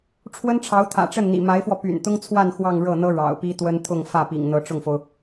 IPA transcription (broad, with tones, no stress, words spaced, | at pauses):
ʈ͡ʂʰwə˥nʈ͡ʂʰɑ˧˥ʊ̯ t̪ʰä̰˨˩ʈ͡ʂə˥˩nn̪ḭ˨˩ ma˧˥ɪ̯fwɔ˧ py̰˨˩nt̪ʊ˥ŋt͡sʰwa˥˧n xwɑ˥˧ŋɻɤ˥˩n̪ɤ˥ ɻɑ̰˨˩ʊ̯pi˥t̪wə˥n t̪ʰʊ˥˧ŋ fä˥˩pḭ˨˩ŋ n̪ɤ˧˥ʈ͡ʂʊ˥˩ŋfo˩ʊ̯